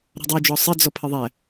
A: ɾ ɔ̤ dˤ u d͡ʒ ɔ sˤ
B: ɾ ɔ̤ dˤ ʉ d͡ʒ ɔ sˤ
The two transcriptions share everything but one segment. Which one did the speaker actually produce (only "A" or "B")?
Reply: A